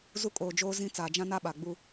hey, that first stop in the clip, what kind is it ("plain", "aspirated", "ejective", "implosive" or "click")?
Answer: ejective